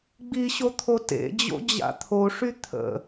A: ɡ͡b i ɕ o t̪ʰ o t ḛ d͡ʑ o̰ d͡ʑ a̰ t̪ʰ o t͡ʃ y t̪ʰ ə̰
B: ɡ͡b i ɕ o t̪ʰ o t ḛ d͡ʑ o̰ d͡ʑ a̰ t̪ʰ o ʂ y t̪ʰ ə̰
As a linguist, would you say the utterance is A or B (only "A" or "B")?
B